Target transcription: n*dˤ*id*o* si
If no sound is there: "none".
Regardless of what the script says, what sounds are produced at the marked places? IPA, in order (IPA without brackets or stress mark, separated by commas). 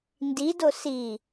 d, o